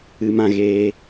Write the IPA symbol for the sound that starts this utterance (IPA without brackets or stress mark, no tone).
ɨ